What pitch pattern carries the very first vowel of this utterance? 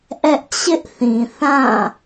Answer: high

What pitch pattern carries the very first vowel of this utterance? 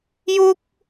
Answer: high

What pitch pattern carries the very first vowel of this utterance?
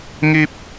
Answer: high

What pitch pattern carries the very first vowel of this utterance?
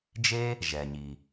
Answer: high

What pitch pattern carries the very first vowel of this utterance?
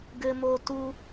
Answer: high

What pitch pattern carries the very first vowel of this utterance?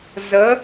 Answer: rising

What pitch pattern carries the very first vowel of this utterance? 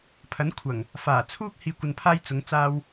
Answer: rising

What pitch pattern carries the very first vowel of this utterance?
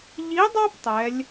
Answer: rising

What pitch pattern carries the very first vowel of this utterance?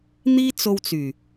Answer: high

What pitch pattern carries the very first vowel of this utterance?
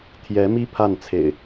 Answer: rising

